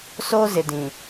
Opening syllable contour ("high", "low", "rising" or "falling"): high